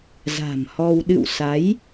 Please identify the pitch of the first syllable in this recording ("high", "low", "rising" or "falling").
low